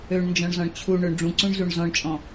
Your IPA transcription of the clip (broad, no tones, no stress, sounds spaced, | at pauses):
ø ɳ n d͡ʒ ɔ̃ ɳ z ɔ̃ ɳ t͡ɕʰ u ɳ ʏ ɳ ɖ͡ʐ ũ ǀ ũ ɳ z u ɳ z ɔ̃ ɳ t͡ʃʼ ɔ̃